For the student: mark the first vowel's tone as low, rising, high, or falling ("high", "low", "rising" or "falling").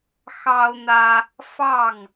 high